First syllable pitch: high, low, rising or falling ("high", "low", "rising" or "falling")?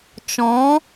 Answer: rising